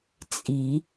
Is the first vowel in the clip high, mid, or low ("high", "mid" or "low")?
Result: high